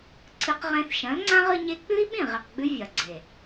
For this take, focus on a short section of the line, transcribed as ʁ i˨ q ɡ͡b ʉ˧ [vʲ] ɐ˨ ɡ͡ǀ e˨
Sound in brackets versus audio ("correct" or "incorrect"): correct